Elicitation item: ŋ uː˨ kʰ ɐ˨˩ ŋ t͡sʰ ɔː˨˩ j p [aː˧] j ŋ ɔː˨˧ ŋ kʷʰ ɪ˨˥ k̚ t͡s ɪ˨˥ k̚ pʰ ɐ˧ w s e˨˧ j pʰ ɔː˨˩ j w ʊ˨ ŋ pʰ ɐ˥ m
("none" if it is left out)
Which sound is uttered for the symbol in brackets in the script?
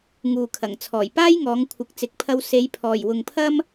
aː˥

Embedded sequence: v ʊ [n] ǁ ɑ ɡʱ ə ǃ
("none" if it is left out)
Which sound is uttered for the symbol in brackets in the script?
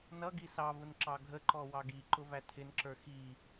n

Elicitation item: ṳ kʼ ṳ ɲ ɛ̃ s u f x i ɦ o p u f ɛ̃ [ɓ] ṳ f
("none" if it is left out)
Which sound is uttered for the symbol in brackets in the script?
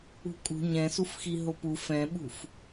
ɓ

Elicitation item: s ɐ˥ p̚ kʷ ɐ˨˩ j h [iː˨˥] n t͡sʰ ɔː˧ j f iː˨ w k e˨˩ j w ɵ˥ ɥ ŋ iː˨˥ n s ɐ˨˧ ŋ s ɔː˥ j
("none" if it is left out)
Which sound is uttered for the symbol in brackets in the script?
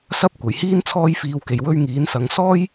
iː˥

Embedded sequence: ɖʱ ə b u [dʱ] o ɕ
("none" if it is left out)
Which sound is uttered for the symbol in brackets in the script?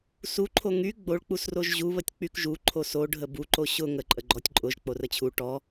ǃ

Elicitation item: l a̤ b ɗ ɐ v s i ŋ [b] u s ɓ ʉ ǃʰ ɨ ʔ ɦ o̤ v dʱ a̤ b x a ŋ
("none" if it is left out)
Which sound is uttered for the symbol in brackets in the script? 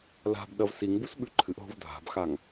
b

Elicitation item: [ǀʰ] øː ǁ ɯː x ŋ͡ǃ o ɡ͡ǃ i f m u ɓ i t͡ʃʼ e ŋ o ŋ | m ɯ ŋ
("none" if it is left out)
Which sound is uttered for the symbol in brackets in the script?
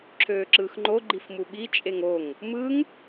ǁʰ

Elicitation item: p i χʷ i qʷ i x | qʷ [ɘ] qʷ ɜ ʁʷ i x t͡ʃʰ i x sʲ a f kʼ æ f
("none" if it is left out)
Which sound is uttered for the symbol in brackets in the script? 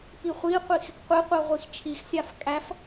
ɘ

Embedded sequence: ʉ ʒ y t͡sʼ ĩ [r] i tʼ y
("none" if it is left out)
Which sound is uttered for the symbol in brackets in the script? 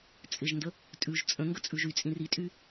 r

